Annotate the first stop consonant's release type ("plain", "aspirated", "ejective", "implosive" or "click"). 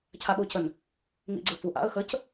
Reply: aspirated